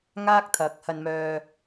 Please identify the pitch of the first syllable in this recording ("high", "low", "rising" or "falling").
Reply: high